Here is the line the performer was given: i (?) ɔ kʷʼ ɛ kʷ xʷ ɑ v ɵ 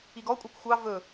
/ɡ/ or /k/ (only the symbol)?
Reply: ɡ